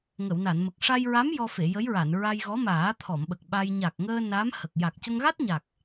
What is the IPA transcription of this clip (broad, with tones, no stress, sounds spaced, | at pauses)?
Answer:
ŋ ə˨˩˨ w n a˨˩˨ n m ə˨˩ k̚ ʂ a˧ j ɹ a˧˥ m j ɔ˧ f e˨˩˨ j ə˧˥ j ɹ a˨˩˨ n ɹ a˧ j ɣ ɔ˧˥ m aː˨˩˦ t̪ʰ ɔ˨˩˨ m ɓ ə˨˩ k̚ ɓ a˧ j ɲ a˨˩ k̚ ŋ əː˧ n a˧˥ m h ə˨˩ k̚ j a˨˩ k̚ c ə˧ ŋ ɣ a˦˥ t̚ ɲ a˨˩ k̚